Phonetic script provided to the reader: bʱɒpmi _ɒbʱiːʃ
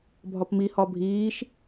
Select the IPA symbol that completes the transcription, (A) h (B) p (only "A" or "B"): A